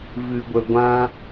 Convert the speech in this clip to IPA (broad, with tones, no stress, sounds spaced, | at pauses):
v ɨ˧ ɡʷ ə˧ ɡʷ ã˦